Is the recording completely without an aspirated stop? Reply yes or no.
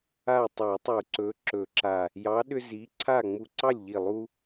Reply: no